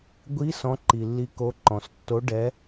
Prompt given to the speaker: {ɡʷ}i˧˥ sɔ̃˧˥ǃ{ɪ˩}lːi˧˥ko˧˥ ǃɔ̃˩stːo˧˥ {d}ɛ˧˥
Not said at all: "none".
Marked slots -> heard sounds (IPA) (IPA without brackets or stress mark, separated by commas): ɡʷ, i˩, ɖ